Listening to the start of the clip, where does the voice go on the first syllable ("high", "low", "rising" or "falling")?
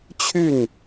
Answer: falling